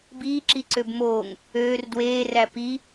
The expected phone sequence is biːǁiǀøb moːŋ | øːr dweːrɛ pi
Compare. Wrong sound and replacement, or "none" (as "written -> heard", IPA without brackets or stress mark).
ɛ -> æ